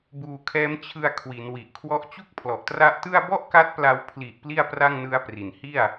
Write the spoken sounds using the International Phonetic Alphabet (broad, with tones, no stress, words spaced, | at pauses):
buː˧kʰɛː˦˥m t͡ɕʰɯ˧a̯ kʰwi˩˦nwi˨˩ʔkʰwɔ˦˥ʔ t͡ɕu˥˩k̚pʰlɔ˨˩ʔtra˦˥ʔtɯ˥˩a̯ bɔ˥˩ʔka˦˥t̚pla˧w pʰli˨˩ʔ pli˥˩a̯pra˥˩ŋnɯ˦˥a̯pri˩˦n hi˥˩a̯